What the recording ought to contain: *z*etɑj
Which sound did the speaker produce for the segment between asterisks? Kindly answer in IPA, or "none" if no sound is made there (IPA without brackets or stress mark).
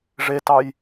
ʐ